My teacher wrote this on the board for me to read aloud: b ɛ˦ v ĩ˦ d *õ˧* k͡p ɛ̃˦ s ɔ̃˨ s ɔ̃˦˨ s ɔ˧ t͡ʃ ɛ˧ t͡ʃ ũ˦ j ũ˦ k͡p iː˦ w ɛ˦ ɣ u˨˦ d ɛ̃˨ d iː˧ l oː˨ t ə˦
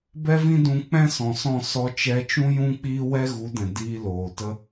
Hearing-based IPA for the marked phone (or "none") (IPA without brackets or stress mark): ũ˧